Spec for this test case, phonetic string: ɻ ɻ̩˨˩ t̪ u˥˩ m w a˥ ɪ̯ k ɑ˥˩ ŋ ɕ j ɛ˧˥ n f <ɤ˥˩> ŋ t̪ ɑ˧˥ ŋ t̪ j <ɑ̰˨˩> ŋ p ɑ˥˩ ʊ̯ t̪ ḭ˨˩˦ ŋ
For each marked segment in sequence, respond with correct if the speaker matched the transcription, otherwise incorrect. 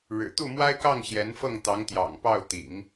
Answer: correct, correct

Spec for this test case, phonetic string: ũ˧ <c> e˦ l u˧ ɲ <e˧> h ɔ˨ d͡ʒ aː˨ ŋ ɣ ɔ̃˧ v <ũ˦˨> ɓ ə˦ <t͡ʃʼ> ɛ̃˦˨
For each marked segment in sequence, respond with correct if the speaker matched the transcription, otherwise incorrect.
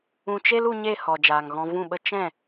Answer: incorrect, incorrect, correct, incorrect

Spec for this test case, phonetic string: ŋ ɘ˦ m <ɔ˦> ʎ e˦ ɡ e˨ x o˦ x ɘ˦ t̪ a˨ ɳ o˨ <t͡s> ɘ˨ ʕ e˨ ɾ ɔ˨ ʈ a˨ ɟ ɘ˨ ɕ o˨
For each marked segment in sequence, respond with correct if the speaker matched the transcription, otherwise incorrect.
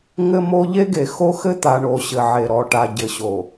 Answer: incorrect, incorrect

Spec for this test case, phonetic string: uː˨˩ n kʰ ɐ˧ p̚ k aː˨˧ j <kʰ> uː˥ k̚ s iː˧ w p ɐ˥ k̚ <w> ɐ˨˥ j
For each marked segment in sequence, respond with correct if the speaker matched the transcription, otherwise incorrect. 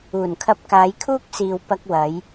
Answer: correct, correct

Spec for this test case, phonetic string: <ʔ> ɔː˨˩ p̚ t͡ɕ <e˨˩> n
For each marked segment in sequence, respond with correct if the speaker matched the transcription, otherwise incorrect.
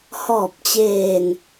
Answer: incorrect, incorrect

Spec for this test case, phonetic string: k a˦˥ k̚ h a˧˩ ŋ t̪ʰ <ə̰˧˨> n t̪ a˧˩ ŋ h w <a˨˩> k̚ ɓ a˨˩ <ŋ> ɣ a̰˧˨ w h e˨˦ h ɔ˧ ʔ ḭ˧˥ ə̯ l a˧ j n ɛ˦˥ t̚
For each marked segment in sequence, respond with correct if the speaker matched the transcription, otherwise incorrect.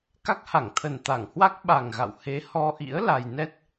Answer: incorrect, incorrect, correct

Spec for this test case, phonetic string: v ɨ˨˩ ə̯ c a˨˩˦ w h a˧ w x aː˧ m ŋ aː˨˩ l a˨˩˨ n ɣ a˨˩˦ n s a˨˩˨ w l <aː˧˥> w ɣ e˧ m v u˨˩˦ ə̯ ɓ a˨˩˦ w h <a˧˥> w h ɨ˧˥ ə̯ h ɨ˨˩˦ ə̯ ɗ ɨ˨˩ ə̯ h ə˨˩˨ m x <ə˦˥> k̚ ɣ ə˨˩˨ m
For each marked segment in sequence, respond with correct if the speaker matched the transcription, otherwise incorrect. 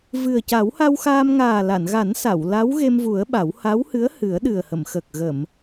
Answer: incorrect, correct, incorrect

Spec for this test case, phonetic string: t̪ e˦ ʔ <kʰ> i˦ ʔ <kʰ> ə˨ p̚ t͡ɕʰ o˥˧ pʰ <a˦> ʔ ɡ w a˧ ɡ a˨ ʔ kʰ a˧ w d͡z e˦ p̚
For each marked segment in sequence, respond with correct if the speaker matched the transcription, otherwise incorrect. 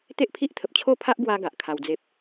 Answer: incorrect, incorrect, correct

